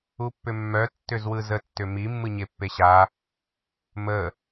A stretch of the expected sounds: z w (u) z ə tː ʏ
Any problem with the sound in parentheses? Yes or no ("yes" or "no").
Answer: yes